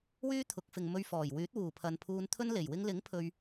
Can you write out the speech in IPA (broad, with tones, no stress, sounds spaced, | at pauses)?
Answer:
w yː˥ t̪ʰ ʊ˨˥ k̚ f ɪ˨ ŋ m ɵ˧ ɥ f ɔː˨˩ j w yː˨˥ t̚ w uː˨˩ pʰ ɐ˨ n pʰ uː˧ n t̪ʰ ɵ˥ n l e˨˩ j w ɪ˧ ŋ l ɪ˨˥ ŋ pʰ ɵ˨ ɥ